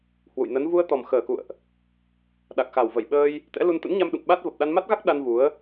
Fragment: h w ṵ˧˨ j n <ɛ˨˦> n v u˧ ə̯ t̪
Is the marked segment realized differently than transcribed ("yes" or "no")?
yes